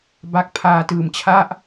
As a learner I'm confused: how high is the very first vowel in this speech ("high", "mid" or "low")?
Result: low